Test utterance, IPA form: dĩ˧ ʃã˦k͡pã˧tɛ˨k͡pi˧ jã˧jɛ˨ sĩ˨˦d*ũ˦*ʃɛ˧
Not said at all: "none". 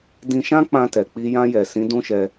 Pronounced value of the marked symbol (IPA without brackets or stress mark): ũ˦